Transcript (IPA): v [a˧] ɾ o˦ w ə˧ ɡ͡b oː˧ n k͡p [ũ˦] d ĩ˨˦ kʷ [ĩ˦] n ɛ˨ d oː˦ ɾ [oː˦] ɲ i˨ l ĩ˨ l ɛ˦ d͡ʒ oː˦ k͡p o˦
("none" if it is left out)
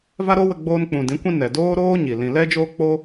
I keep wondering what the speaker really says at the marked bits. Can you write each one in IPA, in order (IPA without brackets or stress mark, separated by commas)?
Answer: a˦, ũ˨, ĩ˦, oː˦